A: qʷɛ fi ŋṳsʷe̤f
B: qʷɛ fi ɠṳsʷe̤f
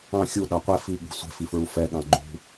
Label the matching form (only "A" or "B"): B